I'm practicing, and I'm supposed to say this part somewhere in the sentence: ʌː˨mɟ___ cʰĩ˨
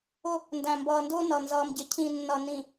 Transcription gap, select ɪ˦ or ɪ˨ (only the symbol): ɪ˨